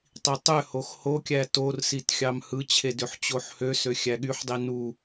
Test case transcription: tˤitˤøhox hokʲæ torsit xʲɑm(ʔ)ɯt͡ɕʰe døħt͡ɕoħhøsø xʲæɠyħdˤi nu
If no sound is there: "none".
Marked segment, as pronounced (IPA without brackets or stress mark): h